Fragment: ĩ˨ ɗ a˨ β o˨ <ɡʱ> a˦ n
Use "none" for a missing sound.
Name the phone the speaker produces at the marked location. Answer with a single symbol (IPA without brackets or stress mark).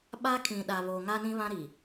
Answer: ŋ